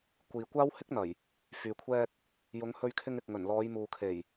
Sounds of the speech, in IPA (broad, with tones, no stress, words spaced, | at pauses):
kʷiː˨ kʷaː˥whɪ˥k̚n̪ɐ˨˩j | fyː˨kʷʰɛː˧k̚ | jʊ˨˧ŋhɵ˧ɥkʰɪ˧ŋɪ˨k̚ ŋɵ˨˩nlɔː˨˧jmuː˨kʰe˨˩j